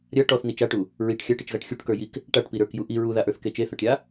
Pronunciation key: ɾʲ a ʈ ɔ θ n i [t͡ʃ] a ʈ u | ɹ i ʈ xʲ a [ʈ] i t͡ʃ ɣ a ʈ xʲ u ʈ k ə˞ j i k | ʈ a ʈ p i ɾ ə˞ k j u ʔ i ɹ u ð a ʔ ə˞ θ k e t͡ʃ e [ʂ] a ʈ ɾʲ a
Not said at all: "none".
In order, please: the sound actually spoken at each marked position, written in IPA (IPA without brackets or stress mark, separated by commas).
t͡ʃ, ʈ, θ